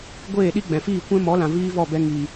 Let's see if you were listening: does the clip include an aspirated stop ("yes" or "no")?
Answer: no